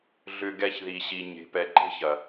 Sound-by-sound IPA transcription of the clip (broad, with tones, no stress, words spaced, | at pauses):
ɮʏ˧ɡɛ˧çði˨ɕi˨ ɲe̤˨pɛ˨ǃe̤˦çɐ˨